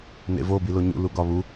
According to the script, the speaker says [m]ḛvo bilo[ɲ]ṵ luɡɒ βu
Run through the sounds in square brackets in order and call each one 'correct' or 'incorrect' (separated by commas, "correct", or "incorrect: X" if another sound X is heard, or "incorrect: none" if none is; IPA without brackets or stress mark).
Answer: incorrect: n, correct